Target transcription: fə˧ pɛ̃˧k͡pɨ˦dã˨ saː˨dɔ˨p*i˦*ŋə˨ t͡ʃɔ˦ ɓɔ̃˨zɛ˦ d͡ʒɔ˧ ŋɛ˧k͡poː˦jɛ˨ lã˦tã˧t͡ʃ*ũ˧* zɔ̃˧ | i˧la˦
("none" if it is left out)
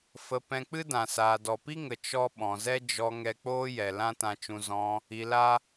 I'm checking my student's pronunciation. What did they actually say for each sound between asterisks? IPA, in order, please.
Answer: i˦, ũ˧

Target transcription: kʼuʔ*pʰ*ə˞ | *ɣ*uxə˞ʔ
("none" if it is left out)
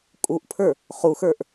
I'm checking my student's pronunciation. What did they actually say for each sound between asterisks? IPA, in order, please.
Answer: pʰ, χ

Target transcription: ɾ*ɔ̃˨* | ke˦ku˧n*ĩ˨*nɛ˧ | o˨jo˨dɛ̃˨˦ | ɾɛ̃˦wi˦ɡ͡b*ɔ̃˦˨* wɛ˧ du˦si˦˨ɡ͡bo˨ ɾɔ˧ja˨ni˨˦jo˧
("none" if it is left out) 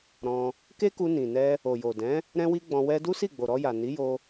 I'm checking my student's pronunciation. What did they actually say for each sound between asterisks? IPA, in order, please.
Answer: ɔ̃˧, ĩ˨, ɔ̃˧

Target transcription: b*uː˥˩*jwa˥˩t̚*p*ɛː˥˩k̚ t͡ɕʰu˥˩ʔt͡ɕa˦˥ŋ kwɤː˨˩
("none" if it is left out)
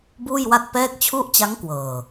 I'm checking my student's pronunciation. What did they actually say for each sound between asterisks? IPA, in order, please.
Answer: uː˥˩, p

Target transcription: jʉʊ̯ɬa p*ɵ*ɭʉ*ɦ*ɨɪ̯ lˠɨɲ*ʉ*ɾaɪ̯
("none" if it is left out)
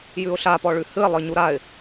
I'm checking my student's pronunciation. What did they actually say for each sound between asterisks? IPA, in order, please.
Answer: ɔ, h, u

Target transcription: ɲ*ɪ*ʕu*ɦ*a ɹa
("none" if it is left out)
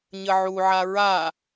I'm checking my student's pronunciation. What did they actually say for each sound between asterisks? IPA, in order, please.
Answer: ə, ʕ

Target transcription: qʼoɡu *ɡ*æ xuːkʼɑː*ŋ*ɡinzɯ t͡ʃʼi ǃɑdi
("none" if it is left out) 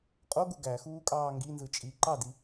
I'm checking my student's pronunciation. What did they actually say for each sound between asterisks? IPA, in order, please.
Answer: ɡ, ŋ

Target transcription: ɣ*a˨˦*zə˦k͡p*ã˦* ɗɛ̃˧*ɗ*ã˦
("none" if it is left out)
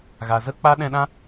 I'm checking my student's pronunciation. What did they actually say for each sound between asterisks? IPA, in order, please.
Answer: a˨, a˦, ɗ

